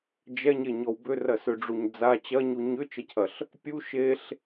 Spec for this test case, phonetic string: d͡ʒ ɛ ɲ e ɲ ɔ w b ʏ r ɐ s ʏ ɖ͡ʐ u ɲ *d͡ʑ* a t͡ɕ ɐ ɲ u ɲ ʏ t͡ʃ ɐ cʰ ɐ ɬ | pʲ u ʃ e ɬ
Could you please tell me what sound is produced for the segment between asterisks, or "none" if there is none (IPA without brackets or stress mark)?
d͡z